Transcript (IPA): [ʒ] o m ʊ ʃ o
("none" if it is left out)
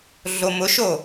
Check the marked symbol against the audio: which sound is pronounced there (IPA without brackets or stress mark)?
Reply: ɮ